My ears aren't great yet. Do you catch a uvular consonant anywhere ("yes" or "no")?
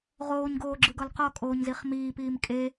yes